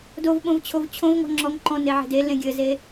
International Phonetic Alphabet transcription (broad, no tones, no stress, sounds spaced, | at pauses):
d o v ɓ õ v t͡ɕʰ o v t͡ɕʰ õ v ŋ ɔ̤ ŋ͡ǁ ɔ ŋ ǃ ɔ̃ n e ʕ e̤ d e l ẽ ɡʲ ɘ z e